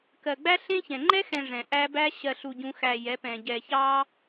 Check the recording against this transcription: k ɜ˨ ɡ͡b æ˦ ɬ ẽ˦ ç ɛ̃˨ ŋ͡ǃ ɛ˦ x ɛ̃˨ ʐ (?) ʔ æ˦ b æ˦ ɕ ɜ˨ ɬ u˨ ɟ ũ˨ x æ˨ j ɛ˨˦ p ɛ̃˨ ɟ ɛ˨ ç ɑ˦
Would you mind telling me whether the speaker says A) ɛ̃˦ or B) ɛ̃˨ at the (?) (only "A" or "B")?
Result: B